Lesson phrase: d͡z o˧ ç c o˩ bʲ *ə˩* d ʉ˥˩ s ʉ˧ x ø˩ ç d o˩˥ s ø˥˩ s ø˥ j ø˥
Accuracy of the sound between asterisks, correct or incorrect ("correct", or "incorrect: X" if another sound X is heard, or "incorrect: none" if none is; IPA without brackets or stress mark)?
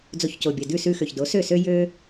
correct